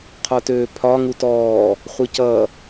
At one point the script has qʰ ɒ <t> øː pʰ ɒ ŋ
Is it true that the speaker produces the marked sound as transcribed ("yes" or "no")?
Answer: yes